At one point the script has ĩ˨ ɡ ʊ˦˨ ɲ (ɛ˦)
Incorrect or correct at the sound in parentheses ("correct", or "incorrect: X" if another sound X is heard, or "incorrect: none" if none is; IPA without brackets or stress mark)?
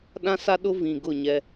correct